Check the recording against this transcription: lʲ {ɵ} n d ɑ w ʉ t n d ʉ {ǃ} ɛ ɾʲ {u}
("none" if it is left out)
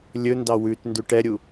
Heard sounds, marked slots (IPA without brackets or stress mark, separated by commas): ɵ, ʈ, u